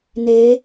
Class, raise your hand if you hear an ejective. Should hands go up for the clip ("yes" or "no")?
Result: no